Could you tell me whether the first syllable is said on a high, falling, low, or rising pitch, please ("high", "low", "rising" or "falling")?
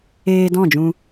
low